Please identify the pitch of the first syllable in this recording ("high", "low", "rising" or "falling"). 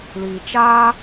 low